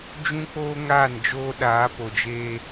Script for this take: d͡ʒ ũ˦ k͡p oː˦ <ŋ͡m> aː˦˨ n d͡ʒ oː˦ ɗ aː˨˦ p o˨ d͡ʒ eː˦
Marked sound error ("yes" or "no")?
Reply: yes